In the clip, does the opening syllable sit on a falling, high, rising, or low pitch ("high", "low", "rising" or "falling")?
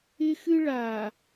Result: high